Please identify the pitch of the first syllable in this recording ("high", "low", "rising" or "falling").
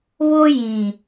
high